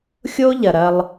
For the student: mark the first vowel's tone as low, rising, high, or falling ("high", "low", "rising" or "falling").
high